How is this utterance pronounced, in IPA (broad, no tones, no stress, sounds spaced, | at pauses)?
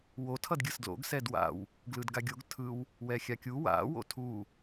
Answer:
w o tʰ ʌ d ɡʲ ɯ s d l o̰ ɡ s ɛ d w a̰ w | ɡ l ɯ d ɡ a ɡʲ o ɡ tʰ ɯ w | w ɛ xʲ a kʲ u w a̰ w o̰ tʰ u